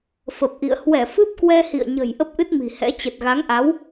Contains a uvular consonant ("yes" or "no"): no